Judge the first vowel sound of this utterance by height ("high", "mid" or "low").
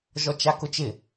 mid